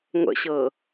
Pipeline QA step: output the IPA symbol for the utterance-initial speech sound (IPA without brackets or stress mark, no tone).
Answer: ŋʷ